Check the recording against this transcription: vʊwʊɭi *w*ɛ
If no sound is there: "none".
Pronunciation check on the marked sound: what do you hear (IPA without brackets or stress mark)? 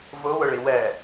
w